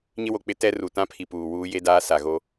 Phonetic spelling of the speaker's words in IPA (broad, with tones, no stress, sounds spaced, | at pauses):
ɲ ɪ˦ w o˨ k͡p ɪ˦ t ɛ˦ r u˨ t ã˦ pʰ i˨ p uː˨ w uː˦ j e˦ d aː˦ s a˨ ɣ o˦